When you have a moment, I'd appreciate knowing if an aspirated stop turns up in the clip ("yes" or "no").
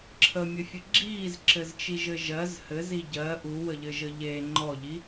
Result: yes